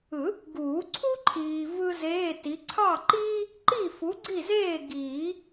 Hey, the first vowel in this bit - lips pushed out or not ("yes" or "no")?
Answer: no